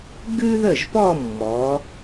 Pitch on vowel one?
high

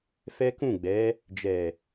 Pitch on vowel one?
high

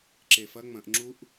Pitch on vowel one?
low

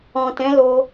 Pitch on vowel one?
low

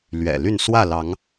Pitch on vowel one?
low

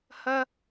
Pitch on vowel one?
high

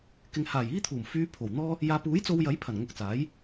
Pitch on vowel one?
low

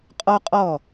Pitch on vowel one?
high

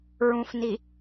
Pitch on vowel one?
low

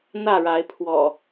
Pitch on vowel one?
falling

